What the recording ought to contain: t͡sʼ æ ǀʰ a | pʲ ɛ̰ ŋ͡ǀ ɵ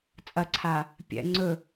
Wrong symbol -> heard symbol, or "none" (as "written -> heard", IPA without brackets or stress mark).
æ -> ɐ